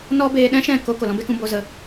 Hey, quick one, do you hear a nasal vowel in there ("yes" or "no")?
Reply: yes